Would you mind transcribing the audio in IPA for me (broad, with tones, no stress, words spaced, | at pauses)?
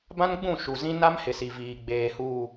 bã˦nɡ͡bũ˦˨ ʃu˨zĩ˦ na˦mhɪ˨ si˨viː˨ ɡ͡beː˨huː˨